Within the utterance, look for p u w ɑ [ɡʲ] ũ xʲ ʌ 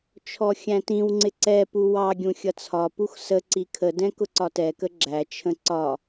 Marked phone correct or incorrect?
correct